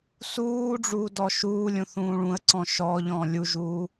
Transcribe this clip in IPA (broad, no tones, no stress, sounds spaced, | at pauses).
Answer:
s uː ɖ͡ʐ uː d ɔ ʃ uː lʲ ũ θ ũː ɭ ũ ə̯ ǀ ɔ̃ ʃ ɔ ʎ ɔ̃ lʲ u ʒ uː